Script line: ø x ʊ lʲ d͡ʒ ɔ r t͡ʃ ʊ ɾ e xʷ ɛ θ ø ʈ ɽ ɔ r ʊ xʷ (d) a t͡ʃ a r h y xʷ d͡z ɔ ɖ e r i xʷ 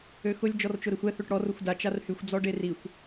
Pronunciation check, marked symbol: correct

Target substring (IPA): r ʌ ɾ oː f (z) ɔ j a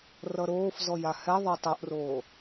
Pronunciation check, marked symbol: correct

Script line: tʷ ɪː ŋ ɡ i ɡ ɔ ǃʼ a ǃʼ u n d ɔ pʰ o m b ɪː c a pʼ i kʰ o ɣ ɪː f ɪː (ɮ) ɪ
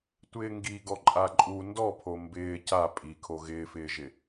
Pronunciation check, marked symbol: incorrect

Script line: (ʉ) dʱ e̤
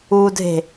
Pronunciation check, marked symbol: incorrect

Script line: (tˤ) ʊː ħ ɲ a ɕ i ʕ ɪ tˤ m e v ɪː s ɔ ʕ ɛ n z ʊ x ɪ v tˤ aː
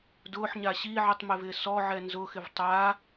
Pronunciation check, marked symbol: incorrect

